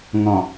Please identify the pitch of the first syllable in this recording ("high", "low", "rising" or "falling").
low